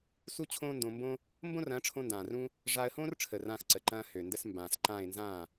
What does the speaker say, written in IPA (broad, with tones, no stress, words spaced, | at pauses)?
su˦t͡ɕʰõː˦ndõ˧mbõ˦ | mbõ˦rɐ̃ː˨˦ʈ͡ʂʰõ˧ndãː˨r ũ˧ | ʐaː˧ə̯hõː˦rʈ͡ʂʰə˨ rãː˧xǀə˨ǃɐ̃ː˧ hø˨ndə˧s mbãː˨sǃãː˦˨ɪ̯ nzãː˦˨